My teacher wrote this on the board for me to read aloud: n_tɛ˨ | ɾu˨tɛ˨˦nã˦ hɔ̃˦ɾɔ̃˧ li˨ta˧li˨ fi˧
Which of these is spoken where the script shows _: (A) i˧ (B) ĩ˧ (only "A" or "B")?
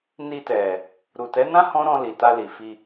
A